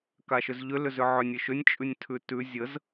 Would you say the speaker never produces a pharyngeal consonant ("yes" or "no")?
no